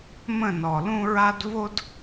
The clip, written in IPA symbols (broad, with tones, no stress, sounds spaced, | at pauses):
m ə̃˦˨ n ɔ˨ l ũ˦ ɹ a˦ d v o˦ d